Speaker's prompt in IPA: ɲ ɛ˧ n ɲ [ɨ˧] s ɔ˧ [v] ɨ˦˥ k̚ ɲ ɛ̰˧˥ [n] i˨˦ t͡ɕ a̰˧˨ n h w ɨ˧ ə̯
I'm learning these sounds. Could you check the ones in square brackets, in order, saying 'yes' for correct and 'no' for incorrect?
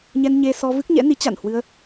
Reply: no, yes, yes

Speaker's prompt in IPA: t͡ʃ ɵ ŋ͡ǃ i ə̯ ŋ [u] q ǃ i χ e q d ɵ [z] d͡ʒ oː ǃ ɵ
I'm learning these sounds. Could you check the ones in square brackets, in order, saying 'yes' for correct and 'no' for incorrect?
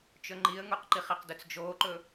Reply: yes, no

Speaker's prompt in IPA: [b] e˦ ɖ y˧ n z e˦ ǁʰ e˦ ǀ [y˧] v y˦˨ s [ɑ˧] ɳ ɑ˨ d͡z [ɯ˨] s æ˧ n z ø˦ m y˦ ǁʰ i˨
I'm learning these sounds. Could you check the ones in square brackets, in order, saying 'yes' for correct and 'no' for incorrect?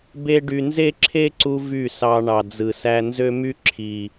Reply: yes, no, yes, yes

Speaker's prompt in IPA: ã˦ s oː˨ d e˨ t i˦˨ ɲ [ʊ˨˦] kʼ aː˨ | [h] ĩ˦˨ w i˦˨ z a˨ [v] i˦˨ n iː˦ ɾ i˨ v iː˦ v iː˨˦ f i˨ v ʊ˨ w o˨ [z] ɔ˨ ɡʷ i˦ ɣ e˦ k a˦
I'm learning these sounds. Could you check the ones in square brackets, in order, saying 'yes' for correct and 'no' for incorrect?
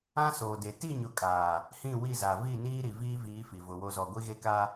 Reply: yes, yes, yes, yes

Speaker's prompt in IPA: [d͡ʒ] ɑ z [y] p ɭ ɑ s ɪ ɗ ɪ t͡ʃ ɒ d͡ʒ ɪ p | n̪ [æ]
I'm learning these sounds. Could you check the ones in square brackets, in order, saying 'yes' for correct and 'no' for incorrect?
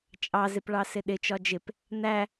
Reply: no, no, yes

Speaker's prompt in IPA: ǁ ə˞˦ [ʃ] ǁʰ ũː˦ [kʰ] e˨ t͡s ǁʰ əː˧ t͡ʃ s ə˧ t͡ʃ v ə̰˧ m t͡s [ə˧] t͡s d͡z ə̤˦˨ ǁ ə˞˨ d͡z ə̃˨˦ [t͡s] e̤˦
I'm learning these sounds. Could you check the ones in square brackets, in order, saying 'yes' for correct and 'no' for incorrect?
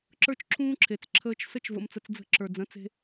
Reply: no, no, yes, yes

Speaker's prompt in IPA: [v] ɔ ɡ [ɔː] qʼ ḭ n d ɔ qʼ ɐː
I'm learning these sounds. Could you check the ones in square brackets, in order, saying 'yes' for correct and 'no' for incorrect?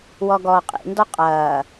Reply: no, yes

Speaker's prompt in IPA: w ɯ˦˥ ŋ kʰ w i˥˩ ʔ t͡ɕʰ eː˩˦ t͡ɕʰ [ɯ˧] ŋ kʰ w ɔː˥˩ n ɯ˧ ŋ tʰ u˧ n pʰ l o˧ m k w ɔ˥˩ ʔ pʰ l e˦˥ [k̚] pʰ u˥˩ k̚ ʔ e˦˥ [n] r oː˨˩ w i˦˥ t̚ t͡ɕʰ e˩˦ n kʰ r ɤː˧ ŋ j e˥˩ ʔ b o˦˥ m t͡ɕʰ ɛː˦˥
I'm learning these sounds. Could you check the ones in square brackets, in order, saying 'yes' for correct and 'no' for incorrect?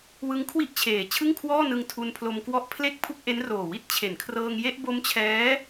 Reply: no, yes, yes

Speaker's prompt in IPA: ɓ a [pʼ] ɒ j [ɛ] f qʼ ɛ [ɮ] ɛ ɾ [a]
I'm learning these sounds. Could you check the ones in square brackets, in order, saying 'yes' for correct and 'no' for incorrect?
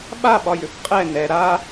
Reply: no, no, no, yes

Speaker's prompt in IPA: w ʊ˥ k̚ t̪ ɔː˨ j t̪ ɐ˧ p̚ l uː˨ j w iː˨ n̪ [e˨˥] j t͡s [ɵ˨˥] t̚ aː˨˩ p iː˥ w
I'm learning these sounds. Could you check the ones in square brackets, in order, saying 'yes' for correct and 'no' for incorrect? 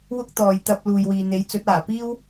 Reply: yes, yes

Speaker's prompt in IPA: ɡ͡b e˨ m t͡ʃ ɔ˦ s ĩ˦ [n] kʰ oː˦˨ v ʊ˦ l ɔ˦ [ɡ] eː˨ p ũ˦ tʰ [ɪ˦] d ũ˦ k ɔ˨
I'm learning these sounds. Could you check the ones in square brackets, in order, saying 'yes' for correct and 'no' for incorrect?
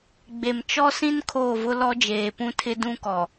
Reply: yes, no, yes

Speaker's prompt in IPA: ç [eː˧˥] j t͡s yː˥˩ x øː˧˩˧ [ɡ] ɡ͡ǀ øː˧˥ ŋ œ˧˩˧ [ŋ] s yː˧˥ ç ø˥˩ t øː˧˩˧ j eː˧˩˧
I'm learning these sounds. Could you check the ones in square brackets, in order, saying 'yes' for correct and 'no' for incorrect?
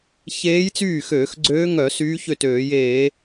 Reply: yes, no, no

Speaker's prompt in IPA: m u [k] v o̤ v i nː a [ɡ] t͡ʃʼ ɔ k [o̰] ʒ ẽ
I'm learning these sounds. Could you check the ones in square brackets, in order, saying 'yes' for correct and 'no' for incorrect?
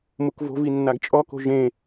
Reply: yes, yes, no

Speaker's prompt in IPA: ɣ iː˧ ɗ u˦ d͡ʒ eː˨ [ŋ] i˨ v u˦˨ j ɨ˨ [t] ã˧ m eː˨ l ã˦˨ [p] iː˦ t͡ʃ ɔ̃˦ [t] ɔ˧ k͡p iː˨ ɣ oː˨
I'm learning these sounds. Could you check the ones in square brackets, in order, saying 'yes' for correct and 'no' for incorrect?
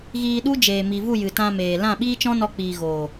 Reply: no, yes, no, no

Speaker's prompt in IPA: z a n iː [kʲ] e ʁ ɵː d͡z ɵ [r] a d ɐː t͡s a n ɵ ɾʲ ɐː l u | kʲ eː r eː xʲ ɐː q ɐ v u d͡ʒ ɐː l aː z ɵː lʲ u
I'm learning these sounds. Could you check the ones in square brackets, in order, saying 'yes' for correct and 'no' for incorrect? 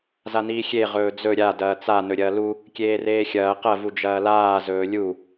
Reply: no, no

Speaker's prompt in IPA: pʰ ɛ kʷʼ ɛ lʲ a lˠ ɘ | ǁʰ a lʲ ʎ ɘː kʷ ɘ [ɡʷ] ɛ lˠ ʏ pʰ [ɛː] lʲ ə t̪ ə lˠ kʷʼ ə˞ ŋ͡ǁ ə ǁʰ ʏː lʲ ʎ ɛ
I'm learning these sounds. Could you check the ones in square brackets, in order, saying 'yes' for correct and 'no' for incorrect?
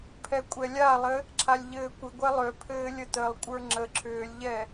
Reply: yes, no

